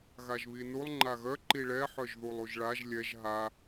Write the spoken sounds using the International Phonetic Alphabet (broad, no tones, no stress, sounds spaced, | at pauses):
ɣ a ʒ β i n u lˠ ŋ͡ǃ a ɣ œ ǃ i ɭ ɛ ħ œ ʒ ð u lˠ u ʒ ɭ a ʒ lʲ ɛ ʒ ɦ a